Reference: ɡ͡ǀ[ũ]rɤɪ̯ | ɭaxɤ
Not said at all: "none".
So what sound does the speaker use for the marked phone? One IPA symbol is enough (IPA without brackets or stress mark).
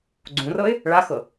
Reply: ũ